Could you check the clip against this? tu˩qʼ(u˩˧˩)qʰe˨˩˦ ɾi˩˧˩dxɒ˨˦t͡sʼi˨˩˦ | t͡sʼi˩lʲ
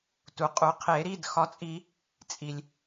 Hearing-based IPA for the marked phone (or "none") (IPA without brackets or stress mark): u˨˩˦